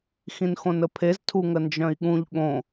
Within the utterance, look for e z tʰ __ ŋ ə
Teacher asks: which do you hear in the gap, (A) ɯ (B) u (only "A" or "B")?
B